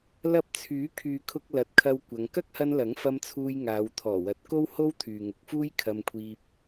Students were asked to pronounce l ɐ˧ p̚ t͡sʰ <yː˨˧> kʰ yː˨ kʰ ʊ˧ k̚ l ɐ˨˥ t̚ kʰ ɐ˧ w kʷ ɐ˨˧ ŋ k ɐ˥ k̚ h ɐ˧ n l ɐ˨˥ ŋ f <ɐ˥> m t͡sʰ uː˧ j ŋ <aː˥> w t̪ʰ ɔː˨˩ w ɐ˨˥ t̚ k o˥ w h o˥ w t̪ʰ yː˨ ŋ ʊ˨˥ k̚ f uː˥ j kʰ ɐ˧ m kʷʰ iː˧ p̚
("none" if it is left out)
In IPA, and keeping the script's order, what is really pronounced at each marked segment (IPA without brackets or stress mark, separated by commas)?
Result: yː˨˥, ɐ˧, aː˨˧